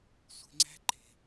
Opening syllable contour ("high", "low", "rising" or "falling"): low